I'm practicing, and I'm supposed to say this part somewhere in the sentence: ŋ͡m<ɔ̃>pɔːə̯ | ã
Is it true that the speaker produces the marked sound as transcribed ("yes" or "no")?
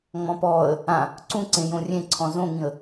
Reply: yes